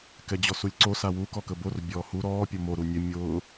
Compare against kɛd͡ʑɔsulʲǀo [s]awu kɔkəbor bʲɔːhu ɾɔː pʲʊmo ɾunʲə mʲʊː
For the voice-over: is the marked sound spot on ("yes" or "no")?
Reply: yes